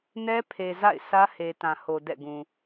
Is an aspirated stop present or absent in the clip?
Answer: present